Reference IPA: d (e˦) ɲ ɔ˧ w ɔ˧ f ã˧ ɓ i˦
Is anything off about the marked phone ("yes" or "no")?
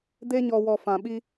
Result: no